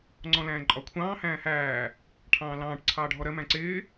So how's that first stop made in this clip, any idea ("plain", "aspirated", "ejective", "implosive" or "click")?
click